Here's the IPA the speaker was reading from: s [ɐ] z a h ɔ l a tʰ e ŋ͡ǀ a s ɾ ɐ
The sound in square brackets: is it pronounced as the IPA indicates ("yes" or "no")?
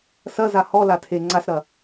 yes